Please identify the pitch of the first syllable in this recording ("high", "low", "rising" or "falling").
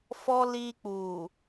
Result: high